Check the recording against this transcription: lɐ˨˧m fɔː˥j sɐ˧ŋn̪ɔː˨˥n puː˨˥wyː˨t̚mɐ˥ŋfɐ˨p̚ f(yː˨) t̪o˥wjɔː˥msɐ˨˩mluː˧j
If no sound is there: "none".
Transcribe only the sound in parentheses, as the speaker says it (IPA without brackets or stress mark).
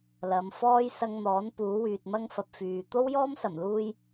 yː˨